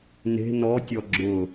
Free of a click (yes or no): no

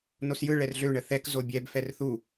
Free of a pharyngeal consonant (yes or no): yes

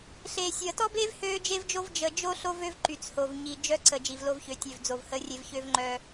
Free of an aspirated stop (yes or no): yes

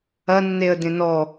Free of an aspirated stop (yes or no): yes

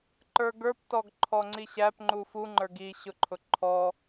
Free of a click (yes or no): no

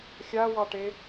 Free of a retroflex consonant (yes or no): no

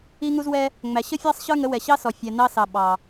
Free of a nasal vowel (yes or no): yes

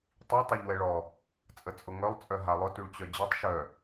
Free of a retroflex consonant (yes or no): no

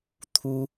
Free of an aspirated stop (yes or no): no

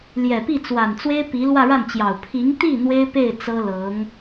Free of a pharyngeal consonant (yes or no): yes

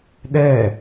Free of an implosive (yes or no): no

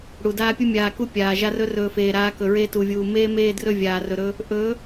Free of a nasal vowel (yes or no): yes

